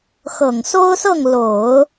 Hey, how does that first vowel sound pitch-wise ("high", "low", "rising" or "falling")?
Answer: low